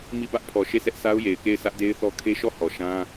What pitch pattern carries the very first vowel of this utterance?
falling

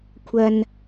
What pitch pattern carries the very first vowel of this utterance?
high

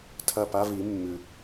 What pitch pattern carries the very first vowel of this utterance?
falling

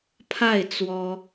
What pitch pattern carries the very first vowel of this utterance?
falling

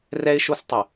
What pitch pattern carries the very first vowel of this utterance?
high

